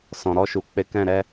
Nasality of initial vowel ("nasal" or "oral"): nasal